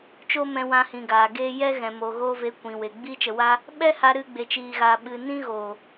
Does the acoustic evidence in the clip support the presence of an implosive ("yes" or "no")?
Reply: yes